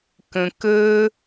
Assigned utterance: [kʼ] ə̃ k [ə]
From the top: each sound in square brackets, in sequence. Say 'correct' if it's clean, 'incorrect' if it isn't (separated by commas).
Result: incorrect, correct